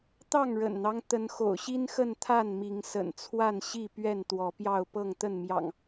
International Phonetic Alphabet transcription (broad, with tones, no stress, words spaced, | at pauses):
t̪ɑ˥˨ŋɻə̰˨˩nn̪ɑ˦ŋ t̪ə˨˦nxo̰˨˩ʊ̯ɕi˦nxə˥˨n t̪ʰa˥˨nmi˨˦ŋ sə̰˨˩nt͡sʰwa˥˨n ɕi˥˨ pɥɛ˥˨nt̪wɔ˨˦pjɑ˥˨ʊ̯ pɤ˥˨ŋt̪ə˥˨nmjɑ̰˨˩ŋ